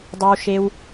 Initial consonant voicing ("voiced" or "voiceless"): voiced